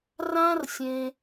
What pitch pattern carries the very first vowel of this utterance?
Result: high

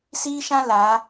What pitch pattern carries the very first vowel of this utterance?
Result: high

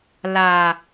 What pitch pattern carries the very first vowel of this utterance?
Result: low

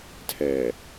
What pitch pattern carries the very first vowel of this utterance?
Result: low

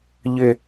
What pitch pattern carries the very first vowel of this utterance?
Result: low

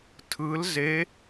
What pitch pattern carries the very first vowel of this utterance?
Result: rising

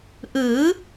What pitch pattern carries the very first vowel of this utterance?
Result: rising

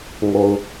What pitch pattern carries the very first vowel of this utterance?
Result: low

